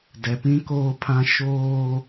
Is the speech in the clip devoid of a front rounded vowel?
yes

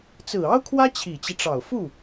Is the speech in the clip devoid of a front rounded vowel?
yes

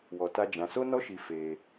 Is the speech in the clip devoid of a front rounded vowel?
yes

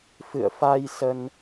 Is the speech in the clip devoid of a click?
yes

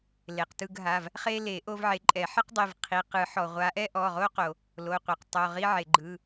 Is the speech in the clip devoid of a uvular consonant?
no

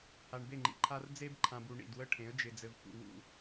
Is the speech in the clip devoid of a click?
no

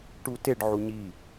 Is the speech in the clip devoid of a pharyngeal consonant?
no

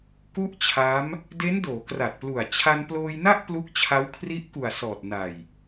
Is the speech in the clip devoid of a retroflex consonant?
yes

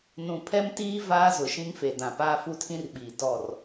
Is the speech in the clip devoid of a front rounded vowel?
yes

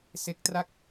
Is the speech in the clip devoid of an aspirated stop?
yes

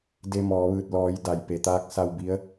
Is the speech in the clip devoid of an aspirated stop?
yes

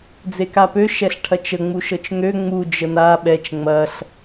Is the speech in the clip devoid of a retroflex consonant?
no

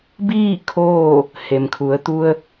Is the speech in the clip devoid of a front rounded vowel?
yes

